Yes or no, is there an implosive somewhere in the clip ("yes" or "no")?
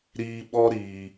yes